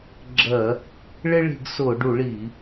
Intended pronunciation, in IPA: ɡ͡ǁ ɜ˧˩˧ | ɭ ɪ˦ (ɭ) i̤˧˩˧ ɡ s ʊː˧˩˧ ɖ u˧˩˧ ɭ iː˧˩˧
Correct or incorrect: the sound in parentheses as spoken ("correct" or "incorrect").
correct